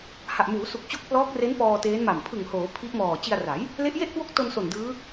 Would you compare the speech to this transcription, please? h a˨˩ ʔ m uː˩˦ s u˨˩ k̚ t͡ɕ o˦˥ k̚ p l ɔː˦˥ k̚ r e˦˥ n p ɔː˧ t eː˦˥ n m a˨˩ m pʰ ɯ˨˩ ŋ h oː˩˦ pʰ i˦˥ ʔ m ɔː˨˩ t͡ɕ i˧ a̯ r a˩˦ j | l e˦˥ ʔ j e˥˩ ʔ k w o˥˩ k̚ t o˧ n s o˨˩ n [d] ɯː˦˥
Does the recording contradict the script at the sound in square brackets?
no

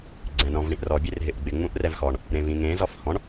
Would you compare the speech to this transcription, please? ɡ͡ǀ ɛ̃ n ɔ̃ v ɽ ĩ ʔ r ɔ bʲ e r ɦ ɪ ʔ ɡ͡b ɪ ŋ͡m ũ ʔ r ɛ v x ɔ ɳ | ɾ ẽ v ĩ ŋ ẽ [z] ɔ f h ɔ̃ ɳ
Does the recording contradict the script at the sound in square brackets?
no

